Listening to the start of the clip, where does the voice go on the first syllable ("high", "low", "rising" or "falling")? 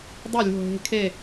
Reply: falling